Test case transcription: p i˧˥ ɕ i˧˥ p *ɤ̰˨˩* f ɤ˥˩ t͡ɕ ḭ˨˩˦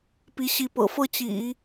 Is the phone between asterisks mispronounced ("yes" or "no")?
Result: no